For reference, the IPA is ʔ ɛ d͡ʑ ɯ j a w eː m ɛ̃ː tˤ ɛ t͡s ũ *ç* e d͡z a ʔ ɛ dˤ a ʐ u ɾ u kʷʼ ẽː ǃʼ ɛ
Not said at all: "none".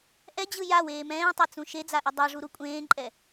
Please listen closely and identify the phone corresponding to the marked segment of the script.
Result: ʃ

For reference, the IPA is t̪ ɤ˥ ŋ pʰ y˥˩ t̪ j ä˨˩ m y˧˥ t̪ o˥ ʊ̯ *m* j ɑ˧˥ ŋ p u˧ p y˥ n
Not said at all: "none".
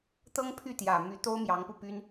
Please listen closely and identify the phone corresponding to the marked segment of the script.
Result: m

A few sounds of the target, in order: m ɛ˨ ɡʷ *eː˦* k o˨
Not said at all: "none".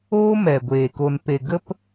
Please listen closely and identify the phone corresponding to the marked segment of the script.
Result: eː˨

